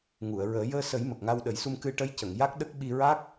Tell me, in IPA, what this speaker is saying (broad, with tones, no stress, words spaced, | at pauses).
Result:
ŋu˨˩˨ə̯ɹəː˨˩˦ jəː˧sə˨˩˦j mə˨˩k̚ŋa˧wɗə˨˩˦jsu˧m kɨ˧ʈə˧˥jcə˨˩˨ŋ ja˦˥k̚ɗə˦˥k̚ ɓi˧ɹa˦˥k̚